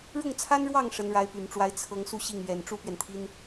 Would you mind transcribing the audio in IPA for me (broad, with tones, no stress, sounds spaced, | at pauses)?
ɻ ʊ˥˩ ŋ t͡sʰ a˥ n ɻ w ɑ˥˩ ŋ ʂ ə˧˥ n ɻ a˧˥ ɪ̯ p y˨˩ n ʈ͡ʂ w a˧˥ ɪ̯ t͡sʰ ɤ˧˥ ŋ s u˥˧ ɕ i˥˩ ŋ ɥ ɛ˨˩ n ʈ͡ʂ u˥ p ɥ ɛ˨ n t̪ʰ i˥ n